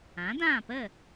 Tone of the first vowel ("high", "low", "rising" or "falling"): rising